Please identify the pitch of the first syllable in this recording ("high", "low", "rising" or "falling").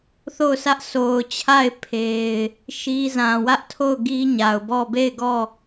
falling